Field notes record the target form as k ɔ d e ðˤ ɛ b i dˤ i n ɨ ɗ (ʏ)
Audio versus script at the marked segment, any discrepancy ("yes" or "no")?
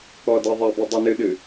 yes